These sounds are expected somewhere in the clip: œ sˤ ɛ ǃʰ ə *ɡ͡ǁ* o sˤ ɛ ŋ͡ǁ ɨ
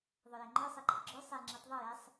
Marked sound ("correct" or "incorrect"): correct